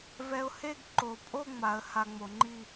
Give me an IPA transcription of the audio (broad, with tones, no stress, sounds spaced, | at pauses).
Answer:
v ɛ˧ ʊ̯ h e˥˧ ɡ ǃ o˩˧ pʼ o˥˧ ŋ͡m a˩˧ ə̯ h a˧ ŋ͡m o˩˧ ŋ͡ǃ i˥˧